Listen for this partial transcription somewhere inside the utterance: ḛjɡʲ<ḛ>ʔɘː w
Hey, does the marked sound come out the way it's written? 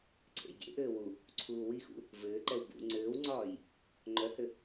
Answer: yes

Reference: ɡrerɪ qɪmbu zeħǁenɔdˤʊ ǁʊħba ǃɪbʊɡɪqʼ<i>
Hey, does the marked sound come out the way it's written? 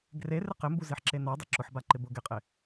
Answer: no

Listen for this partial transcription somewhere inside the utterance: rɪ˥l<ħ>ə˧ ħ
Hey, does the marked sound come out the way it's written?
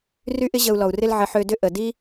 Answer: no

